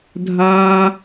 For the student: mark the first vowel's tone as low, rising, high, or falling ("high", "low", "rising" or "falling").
high